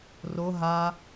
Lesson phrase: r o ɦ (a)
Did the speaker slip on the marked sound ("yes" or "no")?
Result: no